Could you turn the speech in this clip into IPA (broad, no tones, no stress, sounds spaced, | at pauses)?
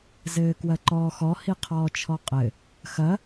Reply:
z ɘː k w ɐ ǃ ɔː x ɔ h i qʰ ɔː t͡ʃʰ ɔ qʼ ɘ | x ɐ